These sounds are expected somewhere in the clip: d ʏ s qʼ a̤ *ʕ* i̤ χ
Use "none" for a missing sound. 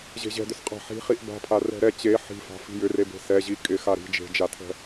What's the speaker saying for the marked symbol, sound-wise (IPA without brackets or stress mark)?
ħ